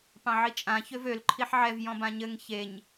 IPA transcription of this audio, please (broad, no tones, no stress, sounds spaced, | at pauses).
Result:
p ɑ̃ ʕ i t͡ʃʼ ã ç ø v ø l ǃʰ i ħ ʕ ɛ v j ɔ̃ b ã ɲ ɘ ŋ ç e ɲ